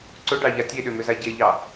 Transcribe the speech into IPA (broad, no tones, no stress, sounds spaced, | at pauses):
ǀ ʊ ɖ ɑ ʎ a tʲ e ɗ ʏ m ʏ z a ɟ e ʎ ɑ